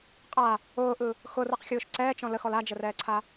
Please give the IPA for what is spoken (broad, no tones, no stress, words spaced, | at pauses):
qʼa | ʊːʔɯ | xʊrɯqxʲʊːʃ ǀɛːt͡ʃɔ̃ ləxɔl ad͡ʒərɛːǀʰa